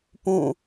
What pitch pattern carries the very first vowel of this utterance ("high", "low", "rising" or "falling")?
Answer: falling